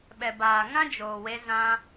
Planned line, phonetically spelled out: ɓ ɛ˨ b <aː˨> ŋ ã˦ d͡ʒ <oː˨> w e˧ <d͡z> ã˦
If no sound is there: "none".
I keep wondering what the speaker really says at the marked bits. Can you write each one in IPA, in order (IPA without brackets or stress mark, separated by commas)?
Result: aː˨, oː˨, z